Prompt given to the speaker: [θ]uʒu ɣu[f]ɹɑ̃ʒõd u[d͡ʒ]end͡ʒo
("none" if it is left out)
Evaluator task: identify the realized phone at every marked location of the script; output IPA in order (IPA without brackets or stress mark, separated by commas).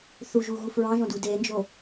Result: θ, f, d